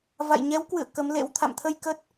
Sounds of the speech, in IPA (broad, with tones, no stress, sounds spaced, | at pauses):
v a̰˧˨ j ɲ ɛ˨˦ w k w ɨ̰˧˨ ə̯ k ə˨˦ m l ḛ˧˥ w t̪ʰ a̰˧˨ m t̪ʰ ə˧ j k ə˦˥ t̚